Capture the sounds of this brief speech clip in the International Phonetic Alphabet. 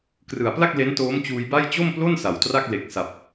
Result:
krɯ˨˩a̯pla˥˩k̚ le˦˥ntoː˦˥mt͡ɕuː˧jba˥˩j t͡ɕo˥˩mplo˥˩n sa˨˩wtra˥˩k̚ le˨˩k̚sa˨˩p̚

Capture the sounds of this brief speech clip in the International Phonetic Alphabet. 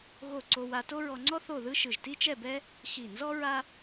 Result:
ɣo˥˧ ǀo˧wa˧to˥ ɹɔ˧ŋ͡ǀɔ˥ θo˥˧ðɯ˥ʃɯ˧˩ʒ ti˥t͡ʃɛ˥˧bɛ˥ | xi˧˩nzɔ˥ ɹa˥

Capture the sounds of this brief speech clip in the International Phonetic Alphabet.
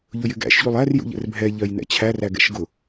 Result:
ʎʊjɪɡæ̰ʃʎulˠ ær jṵʎɛ̰rbʱɛʎɜj nɛ̰t͡ɕʰæræ ɡɛ̰ʃɡʊ

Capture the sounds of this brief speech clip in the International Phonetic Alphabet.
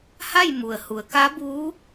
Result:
ha˥˨jmu˩ə̯ hu˩˧ə̯ka˧˥buː˧˥

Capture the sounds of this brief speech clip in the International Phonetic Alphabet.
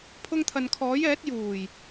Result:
pʰʊ˧ŋt̪ʰɐ˨n kʰɔː˨˥jɛː˨˥t̚ juː˨˩j

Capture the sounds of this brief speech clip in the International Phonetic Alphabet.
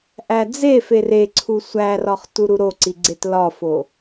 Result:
ʔæd͡zefe reǀʰu sʷærɒχ tuɾuɾoǀi ɡ͡ǀetlɒfo

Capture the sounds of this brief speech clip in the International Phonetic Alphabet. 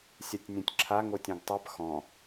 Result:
sʲatʲnʲõtʲǁʰa ŋotʲɔ̃ɡtˤap xɔ̃

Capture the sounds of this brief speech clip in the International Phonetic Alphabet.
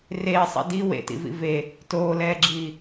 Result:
reːsˤḭ di wḛtḭvḭ ve | toːlɛːɡ͡ǁiː

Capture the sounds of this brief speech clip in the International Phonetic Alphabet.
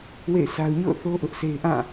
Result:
wḛ˦˨ɪ̯sa˦ʊ̯ ɲo̰˦˨ʊ̯θo˦ ʔʊ˦ʔse˦ɪ̯ ʔã˦˨

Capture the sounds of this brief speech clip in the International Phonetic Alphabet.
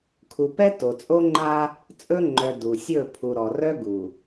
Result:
kʰu˨pɛ˦ to˨t͡sʼo˦ ŋ͡ǃa˦ | t͡sʼɵ˦ ŋ͡ǃœ˨ du˨ sʲɵ˦˨ pʰu˨ ɾɔ˨rœ˦ ɡu˨

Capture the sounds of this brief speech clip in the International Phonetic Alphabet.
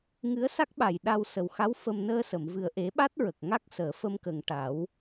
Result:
ŋɨ˧˥ə̯sa˦˥k̚ɓa˨˩j ɗa˧wsə˨˩wxa˧˥w fə˧m nəː˧sə˨˩˨mvɨ˨˩ə̯ ʔe˨˩˦ɓa˦˥t̚ ɹə˨˩k̚ŋa˦˥k̚səː˨˩˦ fə˧mkə˨˩ŋʈa˨˩˦w

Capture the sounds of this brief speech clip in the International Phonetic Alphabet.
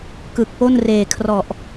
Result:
kɯ˨˩k̚po˥˩n reː˨˩kʰrɔ˨˩ʔ

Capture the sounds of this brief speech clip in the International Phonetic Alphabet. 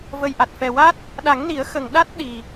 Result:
və˨˩jʔa˨˩t̚fɛ˨˩wa˦˥t̚ | ɗa˨˩˦ŋni˨˩˦ə̯ xə˨˩ŋ ɗa˦˥t̚ ɗi˨˩

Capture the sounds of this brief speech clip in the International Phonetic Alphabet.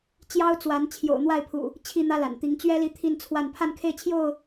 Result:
t͡ɕjɑ˦ʊ̯t͡swa˨˦n t͡ɕʰjo̰˨˩ʊ̯n̪wa˥˨ɪ̯pʰṵ˨˩ | t͡ɕʰi˥˨n̪ä˦ la̰˨˩nt̪i˨˦ŋ t͡ɕɥɛ˦li˨˦ t̪ʰi˥˨nt͡sʰwa˥˨n pʰa˥˨nkʰe˥˨ɪ̯t͡ɕʰjo˥˨ʊ̯

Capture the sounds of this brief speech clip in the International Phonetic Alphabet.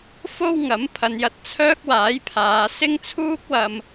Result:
fo˥wŋɐ˨˥m pʰɐ˨˧njɐ˨˥t̚ t͡sʰœː˥k̚waː˨˥jpʰaː˨˧ sɪ˥ŋt͡sʰuː˥k̚wɐ˧m

